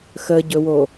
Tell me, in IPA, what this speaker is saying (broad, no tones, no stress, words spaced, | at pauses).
xəɟɵwo